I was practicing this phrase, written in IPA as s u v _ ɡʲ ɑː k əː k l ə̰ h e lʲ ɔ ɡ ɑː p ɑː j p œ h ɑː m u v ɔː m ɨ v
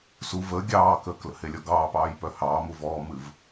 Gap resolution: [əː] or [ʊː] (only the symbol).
əː